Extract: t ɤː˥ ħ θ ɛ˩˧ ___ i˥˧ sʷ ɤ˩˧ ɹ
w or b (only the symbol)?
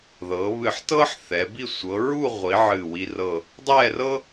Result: b